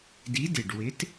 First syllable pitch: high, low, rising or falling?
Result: rising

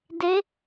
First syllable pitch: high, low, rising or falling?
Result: rising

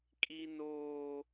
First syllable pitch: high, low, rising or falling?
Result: high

